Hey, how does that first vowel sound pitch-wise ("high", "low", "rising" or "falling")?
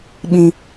high